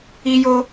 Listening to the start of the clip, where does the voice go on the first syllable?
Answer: high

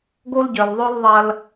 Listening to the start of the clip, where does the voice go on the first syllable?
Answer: high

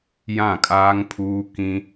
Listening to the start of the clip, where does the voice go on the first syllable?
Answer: falling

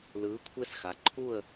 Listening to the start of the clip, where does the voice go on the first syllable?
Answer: rising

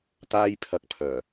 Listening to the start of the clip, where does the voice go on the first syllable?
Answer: high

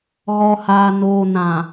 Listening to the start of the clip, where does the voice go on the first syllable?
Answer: low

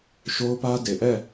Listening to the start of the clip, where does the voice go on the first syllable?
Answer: high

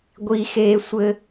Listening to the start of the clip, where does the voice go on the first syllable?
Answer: high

